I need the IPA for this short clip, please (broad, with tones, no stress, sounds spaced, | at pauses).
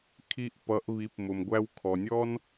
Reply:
kʰ i˧ ʔ p ʌ˩˧ ʔ β i˩˧ p m ʊ˩ m ɡʷ æ˧ w kʰ ɔ˩ nʲ ɔ˥ n